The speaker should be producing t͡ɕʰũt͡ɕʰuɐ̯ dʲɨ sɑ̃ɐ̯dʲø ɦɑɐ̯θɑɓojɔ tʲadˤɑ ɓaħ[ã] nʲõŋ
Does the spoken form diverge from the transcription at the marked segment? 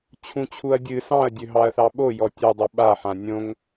no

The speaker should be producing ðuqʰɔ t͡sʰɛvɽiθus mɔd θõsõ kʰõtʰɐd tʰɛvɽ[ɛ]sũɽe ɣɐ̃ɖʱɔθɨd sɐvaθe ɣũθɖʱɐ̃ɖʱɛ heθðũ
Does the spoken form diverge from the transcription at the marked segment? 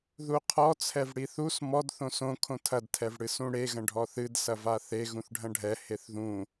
yes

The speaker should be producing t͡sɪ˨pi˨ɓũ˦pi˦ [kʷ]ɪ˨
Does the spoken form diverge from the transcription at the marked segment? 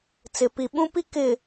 yes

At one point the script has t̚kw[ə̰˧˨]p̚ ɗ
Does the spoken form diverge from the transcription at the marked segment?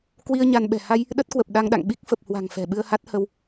yes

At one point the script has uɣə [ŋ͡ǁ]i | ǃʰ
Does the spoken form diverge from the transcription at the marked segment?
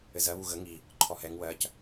yes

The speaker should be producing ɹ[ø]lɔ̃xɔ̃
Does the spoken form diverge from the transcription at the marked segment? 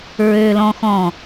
no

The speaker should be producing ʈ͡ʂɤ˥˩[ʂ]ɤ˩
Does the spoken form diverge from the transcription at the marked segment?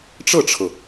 yes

